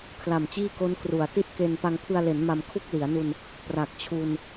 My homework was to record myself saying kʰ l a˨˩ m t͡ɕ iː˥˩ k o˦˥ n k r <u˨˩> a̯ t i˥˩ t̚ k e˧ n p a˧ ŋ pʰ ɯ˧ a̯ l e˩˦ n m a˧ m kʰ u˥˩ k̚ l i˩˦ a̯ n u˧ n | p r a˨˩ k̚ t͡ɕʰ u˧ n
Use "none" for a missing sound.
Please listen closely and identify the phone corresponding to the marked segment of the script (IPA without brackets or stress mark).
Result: u˩˦